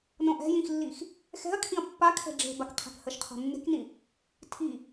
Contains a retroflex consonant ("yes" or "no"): yes